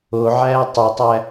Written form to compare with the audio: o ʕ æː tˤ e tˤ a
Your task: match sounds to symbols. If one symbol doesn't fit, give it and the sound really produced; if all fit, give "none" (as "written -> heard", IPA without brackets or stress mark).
a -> æ